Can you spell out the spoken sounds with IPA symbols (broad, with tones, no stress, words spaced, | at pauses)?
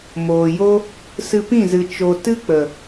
moː˨jo˦ | sɨ˧pĩ˦˨zɨ˨ t͡ʃo˧ tɨ˦k͡pə˨